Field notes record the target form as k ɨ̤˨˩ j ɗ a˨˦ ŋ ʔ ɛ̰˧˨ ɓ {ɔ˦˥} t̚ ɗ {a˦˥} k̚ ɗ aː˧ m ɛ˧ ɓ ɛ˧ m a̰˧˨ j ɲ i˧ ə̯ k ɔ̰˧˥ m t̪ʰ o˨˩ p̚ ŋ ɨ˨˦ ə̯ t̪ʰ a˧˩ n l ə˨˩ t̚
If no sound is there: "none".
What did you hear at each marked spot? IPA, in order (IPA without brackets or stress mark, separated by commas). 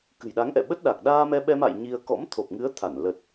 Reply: ə˦˥, a˨˩